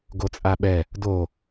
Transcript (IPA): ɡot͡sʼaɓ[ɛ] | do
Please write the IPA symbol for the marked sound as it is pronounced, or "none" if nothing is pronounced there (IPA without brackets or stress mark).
ɛ